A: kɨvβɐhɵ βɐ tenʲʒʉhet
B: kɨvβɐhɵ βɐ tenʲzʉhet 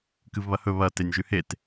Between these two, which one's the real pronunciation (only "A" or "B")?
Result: A